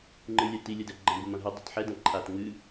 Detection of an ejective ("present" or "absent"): absent